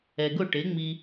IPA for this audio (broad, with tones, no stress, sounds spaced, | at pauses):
ɛ˩ ɡ ʊ˥˩ ʈ e˩˥ ŋ͡m i˧